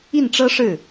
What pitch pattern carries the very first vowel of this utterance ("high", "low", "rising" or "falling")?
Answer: falling